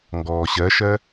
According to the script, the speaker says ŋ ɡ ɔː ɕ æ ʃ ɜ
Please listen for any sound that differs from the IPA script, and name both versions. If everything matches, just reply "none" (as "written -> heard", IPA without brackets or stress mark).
æ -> ɜ